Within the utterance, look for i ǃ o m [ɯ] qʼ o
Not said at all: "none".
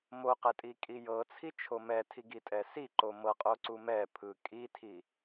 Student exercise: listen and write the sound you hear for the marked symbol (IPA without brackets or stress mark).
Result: ɤ